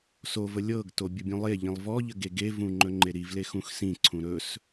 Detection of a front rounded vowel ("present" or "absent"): absent